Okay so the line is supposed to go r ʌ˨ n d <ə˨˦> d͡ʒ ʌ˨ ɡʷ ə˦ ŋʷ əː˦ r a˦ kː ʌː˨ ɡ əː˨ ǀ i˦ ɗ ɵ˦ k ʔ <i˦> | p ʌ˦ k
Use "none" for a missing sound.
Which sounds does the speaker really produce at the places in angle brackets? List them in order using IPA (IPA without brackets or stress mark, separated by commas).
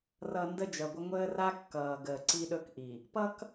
ə˦, i˨